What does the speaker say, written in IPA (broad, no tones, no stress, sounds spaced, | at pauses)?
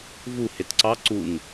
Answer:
v u h e t ǀ ɑ ǀ u ŋ